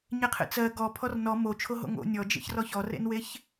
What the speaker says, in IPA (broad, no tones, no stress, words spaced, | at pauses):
ɲeqʰḛt͡sɜ ɡɔ pʰɔrnɔ mo t͡ʃʰoɦo̰ŋo̰ nʲɔd͡ʒḛç rɔçɔrḛnweç